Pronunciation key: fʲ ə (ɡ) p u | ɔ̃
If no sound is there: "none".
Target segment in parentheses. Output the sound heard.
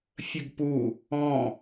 ɡ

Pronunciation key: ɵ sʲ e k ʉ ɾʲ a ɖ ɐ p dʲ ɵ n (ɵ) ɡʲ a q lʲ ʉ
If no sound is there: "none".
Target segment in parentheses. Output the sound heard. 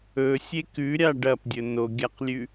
o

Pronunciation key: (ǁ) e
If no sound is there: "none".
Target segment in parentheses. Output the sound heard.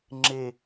ŋ͡ǁ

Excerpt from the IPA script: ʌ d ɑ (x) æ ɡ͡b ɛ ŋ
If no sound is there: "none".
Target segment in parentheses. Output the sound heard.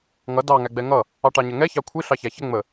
ŋ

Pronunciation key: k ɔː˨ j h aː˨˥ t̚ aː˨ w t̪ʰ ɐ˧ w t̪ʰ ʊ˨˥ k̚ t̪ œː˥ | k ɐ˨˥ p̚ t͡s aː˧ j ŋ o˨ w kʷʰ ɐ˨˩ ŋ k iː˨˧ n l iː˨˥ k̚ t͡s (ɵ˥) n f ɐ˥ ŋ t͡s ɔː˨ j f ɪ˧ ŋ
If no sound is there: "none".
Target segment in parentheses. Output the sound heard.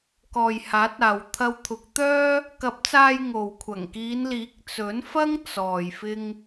ɵ˨˥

